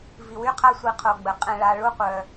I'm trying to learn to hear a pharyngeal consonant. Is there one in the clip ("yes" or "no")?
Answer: no